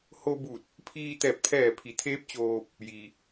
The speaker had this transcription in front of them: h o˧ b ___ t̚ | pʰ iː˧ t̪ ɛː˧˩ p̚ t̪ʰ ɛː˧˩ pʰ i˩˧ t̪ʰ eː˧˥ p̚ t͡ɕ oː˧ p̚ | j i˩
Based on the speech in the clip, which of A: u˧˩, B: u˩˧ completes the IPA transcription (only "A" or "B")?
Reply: A